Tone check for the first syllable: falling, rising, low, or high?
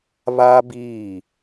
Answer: high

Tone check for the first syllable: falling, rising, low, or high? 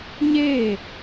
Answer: falling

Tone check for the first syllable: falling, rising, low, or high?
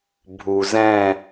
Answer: low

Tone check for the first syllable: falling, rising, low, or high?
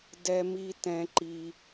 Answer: low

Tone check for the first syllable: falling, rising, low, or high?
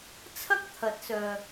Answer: high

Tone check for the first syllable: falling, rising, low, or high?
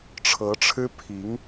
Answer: rising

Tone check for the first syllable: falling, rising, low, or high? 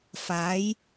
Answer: rising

